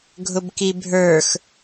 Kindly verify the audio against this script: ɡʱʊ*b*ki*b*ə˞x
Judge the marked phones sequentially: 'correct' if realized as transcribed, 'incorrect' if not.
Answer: correct, incorrect

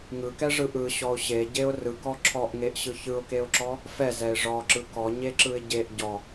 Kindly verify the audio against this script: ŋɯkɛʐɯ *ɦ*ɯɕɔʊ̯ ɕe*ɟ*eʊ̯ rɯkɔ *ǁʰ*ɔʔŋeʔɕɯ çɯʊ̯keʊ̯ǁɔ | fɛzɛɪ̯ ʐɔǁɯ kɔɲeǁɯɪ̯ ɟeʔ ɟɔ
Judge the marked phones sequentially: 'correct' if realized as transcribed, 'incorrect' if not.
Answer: incorrect, correct, correct

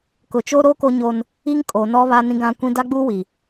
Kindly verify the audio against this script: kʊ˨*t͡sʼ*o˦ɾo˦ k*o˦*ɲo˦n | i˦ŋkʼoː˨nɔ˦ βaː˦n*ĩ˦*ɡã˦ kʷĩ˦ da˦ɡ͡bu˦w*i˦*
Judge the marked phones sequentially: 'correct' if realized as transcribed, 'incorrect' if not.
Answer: incorrect, correct, correct, incorrect

